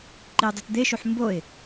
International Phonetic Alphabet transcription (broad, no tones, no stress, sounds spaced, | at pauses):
ǃ i ʊ̯ dˤ i t d̪ e ʃ u ħ m b o ɪ̯